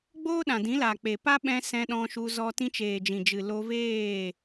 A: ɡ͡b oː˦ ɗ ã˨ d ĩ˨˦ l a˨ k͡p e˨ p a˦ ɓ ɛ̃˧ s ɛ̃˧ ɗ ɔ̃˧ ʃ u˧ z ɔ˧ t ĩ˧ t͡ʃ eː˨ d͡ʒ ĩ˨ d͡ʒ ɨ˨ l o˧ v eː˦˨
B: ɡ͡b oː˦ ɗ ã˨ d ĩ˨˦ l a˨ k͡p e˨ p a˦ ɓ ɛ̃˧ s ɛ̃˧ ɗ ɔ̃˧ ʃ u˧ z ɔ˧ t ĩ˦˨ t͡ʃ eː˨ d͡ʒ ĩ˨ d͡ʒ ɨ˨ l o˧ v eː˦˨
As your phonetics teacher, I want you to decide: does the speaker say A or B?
A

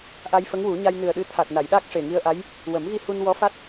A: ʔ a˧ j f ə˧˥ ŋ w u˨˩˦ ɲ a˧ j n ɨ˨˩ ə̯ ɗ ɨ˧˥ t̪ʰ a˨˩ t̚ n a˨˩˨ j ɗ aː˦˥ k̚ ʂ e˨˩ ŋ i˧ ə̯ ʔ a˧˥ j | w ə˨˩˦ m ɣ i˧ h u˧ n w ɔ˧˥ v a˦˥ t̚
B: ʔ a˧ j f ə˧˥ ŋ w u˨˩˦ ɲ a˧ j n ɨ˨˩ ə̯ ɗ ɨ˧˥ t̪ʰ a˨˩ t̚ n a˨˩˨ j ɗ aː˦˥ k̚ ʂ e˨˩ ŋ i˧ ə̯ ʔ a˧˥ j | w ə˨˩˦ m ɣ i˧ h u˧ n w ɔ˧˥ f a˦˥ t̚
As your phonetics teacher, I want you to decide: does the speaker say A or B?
B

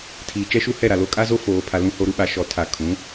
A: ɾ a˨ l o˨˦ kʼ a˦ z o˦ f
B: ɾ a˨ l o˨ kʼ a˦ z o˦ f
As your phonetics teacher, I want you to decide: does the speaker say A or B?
A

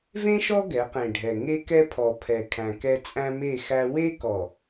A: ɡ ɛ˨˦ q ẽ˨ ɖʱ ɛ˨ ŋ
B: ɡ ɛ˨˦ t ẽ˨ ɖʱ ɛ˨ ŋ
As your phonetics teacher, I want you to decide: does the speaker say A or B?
A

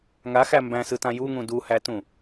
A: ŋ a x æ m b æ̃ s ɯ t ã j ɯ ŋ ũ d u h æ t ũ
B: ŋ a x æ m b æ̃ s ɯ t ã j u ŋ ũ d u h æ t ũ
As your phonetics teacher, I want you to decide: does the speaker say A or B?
B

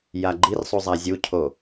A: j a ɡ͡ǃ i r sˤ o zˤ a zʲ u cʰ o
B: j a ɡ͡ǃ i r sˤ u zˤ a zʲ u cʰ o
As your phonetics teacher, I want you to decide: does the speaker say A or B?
B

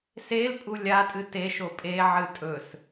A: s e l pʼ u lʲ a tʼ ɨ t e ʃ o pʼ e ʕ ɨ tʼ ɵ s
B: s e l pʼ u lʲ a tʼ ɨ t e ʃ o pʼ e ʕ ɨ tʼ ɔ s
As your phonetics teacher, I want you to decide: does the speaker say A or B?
A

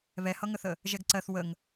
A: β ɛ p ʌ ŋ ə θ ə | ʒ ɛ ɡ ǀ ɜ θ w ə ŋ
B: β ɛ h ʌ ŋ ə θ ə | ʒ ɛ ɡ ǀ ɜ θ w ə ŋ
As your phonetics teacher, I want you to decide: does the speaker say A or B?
B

